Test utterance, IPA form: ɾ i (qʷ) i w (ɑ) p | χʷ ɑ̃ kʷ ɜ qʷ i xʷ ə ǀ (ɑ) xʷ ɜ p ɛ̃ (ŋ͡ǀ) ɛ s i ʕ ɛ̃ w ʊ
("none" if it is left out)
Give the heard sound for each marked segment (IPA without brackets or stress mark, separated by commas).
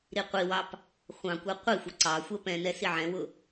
qʷ, ɑ, ɑ, n